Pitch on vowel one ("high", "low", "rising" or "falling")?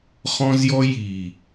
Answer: high